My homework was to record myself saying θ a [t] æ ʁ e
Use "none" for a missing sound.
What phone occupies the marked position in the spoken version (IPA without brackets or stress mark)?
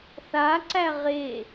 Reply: ǀ